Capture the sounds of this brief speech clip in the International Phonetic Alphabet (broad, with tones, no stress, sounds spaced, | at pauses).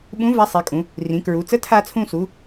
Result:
ɓ ũ˧˥ v a˧˥ sˤ i˩˧ kʼ ũ˩˧ | r ĩ˩˧ k ɹ u˩˧ t͡s ə˧˥ tʰ a˧ t͡sʰ ũ˧ s u˩˧